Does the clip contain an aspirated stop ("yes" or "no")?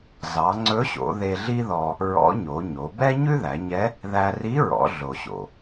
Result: no